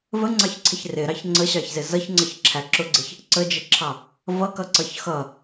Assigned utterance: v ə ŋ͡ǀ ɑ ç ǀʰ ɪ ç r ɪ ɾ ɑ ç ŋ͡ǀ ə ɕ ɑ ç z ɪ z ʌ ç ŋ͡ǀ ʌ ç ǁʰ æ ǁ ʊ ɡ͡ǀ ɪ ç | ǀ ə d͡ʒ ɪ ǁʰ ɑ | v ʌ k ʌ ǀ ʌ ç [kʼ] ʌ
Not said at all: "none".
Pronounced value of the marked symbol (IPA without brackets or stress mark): x